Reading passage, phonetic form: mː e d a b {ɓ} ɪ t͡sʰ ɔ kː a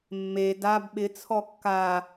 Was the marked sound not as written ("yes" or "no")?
no